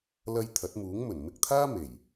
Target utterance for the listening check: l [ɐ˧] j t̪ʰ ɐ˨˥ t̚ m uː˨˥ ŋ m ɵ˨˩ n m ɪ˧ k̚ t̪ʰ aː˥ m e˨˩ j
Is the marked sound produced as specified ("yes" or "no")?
yes